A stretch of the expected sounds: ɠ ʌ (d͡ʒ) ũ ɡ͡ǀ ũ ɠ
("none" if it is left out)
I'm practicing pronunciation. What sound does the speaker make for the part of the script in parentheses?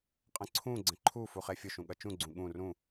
t͡ʃ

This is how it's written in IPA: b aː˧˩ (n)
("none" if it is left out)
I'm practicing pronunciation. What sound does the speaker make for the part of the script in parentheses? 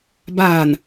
n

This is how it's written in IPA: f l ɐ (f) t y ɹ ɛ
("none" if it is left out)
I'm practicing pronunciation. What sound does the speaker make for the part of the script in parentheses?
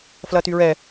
none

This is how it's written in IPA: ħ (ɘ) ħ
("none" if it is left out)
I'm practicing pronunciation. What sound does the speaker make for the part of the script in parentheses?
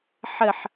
ɘ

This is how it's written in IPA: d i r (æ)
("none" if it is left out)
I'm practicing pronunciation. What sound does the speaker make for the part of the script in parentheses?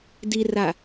a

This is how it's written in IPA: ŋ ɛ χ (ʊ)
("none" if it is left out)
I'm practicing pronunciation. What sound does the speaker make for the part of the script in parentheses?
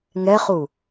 u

